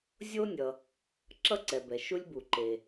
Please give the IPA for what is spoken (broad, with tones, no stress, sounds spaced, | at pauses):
zʲ o˥ nʲ ʌ˨ | ǁ ʌ˥ ǀ ɛ˩ b ɛ˩ ʃ u˦ lʲ b u˩ ǃ e˩